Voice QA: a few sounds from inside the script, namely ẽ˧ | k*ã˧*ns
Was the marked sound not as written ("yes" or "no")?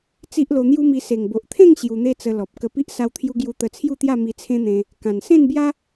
yes